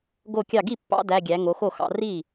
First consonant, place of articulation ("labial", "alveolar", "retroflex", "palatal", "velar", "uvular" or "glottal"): velar